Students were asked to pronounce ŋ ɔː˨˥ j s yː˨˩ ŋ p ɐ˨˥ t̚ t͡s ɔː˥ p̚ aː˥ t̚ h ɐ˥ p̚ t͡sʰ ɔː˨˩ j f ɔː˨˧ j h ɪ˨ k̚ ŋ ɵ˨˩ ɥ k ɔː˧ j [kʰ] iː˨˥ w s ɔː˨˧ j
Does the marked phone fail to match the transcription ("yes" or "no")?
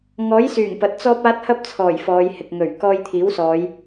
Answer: yes